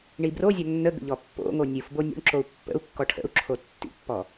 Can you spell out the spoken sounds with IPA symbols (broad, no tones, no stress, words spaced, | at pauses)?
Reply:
ɳibrozʲɔ nːəɡə̰ ʎɔpːo̰ŋo nʲɯfbo nʲo̰ɳǁou̯ pːə̰u̯kːɔ ʈʰə̰u̯ǁʰo tːḭpːɔ